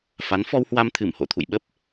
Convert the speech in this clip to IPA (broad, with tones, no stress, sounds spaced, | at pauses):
f a˨˦ n f ɔ˧ w h w a˧ m t̪ʰ ɨ˧˩ m h o̰˧˨ t̪ʰ ṵ˧˨ j ɓ ə˦˥ p̚